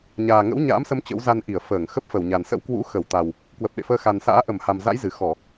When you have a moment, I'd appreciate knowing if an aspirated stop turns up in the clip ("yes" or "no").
no